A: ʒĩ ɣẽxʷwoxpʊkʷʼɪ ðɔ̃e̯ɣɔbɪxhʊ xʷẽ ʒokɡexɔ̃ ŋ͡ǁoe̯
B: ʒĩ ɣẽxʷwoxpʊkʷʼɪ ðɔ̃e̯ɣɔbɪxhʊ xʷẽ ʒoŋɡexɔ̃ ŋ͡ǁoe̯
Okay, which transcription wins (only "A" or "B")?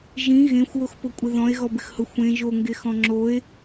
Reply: B